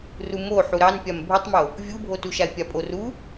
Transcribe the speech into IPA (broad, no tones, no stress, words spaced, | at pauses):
rumo ħuɾɑn pʲambʱutˤmo | vʲubʱotuʃae̯ pʲapʼoru